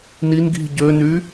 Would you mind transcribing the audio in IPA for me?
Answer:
n i n ɡ i̤ ɟ ø n y

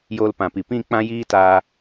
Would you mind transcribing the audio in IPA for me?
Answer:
j oː˧ l p ã˨ p i˨ p ĩ˦˨ k͡p ã˦ j iː˦ t aː˧

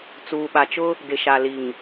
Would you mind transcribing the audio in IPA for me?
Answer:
t͡s uː˨ ɓ a˨ t͡ʃ ʊ˦ | d ɪ˨ ʃ a˨ l i˨ ŋ

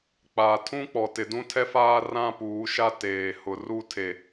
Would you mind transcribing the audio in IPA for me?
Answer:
k͡p a˨ tʰ ũ˦ k͡p ɔ˨ t ɪ˨ d ũ˦ tʰ ɛ˦ f aː˦ r ã˦ p uː˨˦ ʃ a˦ t eː˨ h ʊ˨ r u˦ tʰ e˨

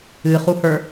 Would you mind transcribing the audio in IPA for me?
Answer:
ɨ χ u h ə˞

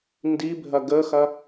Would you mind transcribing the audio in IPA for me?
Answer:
n d i bʱ ɐ ɡ ə x ɐ

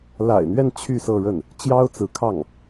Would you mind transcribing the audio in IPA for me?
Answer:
l a̰˨˩ ɪ̯ n̪ ɥ ɛ˥˧ n t͡ɕʰ y˥˧ s ɤ˥˧ ɻ ə˥˩ n | t͡ɕ j ɑ˥ ʊ̯ t͡s ɹ̩˧˥ kʰ ɑ˥˩ ŋ

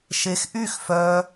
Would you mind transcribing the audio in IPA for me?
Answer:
ʃ e x ʔ y x f œ

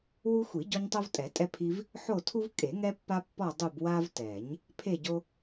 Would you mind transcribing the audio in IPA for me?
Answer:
w u˦ xʷ i˨˩˦ ɟ ɔ˦ ɲ tˤ o˦ v tʼ ɛ˨˩˦ tʼ ɛ˦ pʰ i˦ v | ħ o˦˨ tʰ u˦ v kʼ e˨˩˦ ŋ ɛ˦ pː a˦ pː ɔ˦˨ dˤ u˦˨ b w a˦ v t ɛ˨˩˦ ɲ | pʰ e˦˨ ɟ o˦

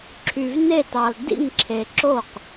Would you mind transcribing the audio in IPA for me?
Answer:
ǁʰ y˨ v n e˦˨ t ɑ˨ l d ḭ˦˨ ŋ ǁʰ e˨ ǁ o˦˨ q

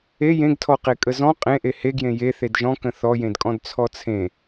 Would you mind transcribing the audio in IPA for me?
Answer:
e j ẽ ɡ tʰ ɔ q e kʼ ə z ɔ̃ qʼ ẽ ʔ e h e ɡ j ẽ j e θ e d ʒ ɔ̃ k ə̃ θ ɔ j ẽ d kʼ ɔ̃ d t͡sʰ ɔ t͡sʰ ẽ

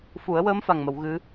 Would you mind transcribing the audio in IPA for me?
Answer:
f u˨˩˦ ə̯ w əː˧˥ m f a˨˩ ŋ m ə˨˩˨ w ɣ ɨ˧˥

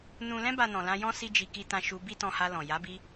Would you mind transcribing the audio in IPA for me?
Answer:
n ũ˨ l ɛ̃˧ b a˨ n ɔ̃˨ l ã˧ j ɔ̃˦ s i˦ d͡ʒ i˧ k i˦ t ã˧ ʃ u˧ b i˦ t ɔ̃˧ h a˧ l ɔ̃˨ j a˨˦ b i˧

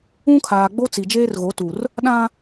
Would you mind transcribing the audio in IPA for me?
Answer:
ũ˦ kʰ aː˨ ɡ͡b o˦ t͡s i˨ d͡ʒ eː˦ r ɣ o˨˦ t u˨ r | ɗ ã˦

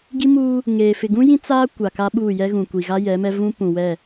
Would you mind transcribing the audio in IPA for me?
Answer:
ɡ i˦ m uː˦ | ŋ eː˨ f ɪ˨ ɡ ũ˦ j ĩ˦ t͡s aː˦ kʷ a˨ k a˦ ɓ uː˦˨ j ɛ˦ ɣ ũ˨ kʷ i˨ ɣ a˦ j ɛ˨˦ m ɛ˦ v ũ˦ p ũ˨ w ɛ˦˨

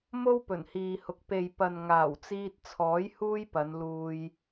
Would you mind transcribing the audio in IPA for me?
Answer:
m o˥ w p ɵ˨˩ n h iː˨ h ʊ˨ k̚ p e˨ j p ɐ˨ n ŋ aː˨˩ w t͡s iː˧ t̚ t͡sʰ ɔː˨˥ j h uː˥ j p ɐ˨˧ n l uː˧ j

